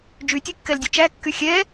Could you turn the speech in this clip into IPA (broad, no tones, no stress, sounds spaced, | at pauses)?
d͡ʒ y tʲ ø kː ɛ l dʲ ɵ t͡ʃ æ kː y xʲ ɛ